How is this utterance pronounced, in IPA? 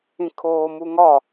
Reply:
ĩ kʰ oː m u ŋ ɒ

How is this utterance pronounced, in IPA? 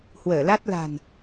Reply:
h w əː˧˩ l a˦˥ t̚ l a̤˨˩ n

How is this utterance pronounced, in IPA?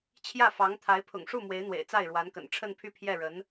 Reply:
t͡ɕʰ j ä˥˩ f ɑ˧˥ ŋ t̪ʰ a˧˥ ɪ̯ pʰ ʊ̰˨˩ ŋ ʂ u˥˩ m w e˧˥ ɪ̯ n̪ w ḛ˨˩ ɪ̯ t͡s a˥˩ ɪ̯ ɻ w a˧˥ n k ə̰˨˩ n ʈ͡ʂʰ ə˥˧ n pʰ y˥˧ pʰ j ɛ˥˩ ɻ ə˧˥ n

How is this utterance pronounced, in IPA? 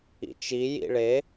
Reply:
ḭ t͡ʃ i j ḭ ɭ e

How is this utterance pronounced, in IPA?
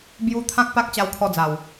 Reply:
b j u˧ t̪ʰ ã˦ k̚ p a˦ k̚ t͡ɕ a˧ w kʰ ɔ˧ d͡z a˨˩ w

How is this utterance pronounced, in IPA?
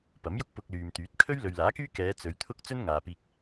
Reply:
p ɐ˨˥ m j ʊ˥ k̚ p ʊ˧ k̚ l yː˨ m t̪ yː˨˥ t̚ kʰ ɵ˥ ɥ l ɵ˨ ɥ l aː˨˥ k yː˥ k ɛː˨˧ t͡s ɵ˨˧ ɥ t̪ʰ ʊ˥ k̚ t͡s ɵ˥ n ŋ aː˨ p iː˧ k̚

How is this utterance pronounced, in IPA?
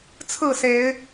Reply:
t͡sʰ ɹ̩˥˨ s e˨˦ ɪ̯

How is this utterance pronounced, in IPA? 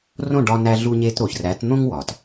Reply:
r õ˥˩ ɖ ɒ˧ n æ˧ ɮ u˧ ɲ e˧ t ɾ o˩ ç r æ˩˥ t n̪ õ˥ ŋ w ɒ˩ t

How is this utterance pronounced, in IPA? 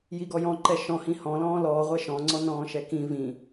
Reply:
j i ɡ ɔ j ɔ̃ ǃ ɛ ʃ ɔ̃ h ĩ h ɔ̃ l ɔ̃ː l ɔː ʁʷ ɛ ʃ ɔ̃ ŋ͡ǀ ɔ n ɔ̃ː ʃ ɛ k ĩ v ĩ

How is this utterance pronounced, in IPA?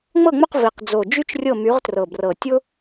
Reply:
ŋ͡m ɤ˥˨ ŋ͡m ʊ˥˨ q v i˨˩ q d͡z o˨˩ d͡ʒ y˥ t͡ʃ rʲ ɤ˥˨ m y˨˥ ʁ t r ɤ˨˩ b r ɤ˨˩ tʲ ʊ˥

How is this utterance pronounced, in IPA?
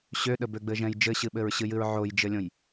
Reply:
ɕ ø ɗ ə b ø ɡ͡b ɘ ʒ ɛ̃ j d͡ʒ ɘ ɕ ɨ ɓ ɘ ɹ ɕ ɨ j ɨ ɹ ʕ o j d͡ʒ ɘ lʲ õ j

